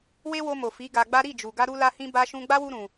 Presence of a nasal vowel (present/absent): present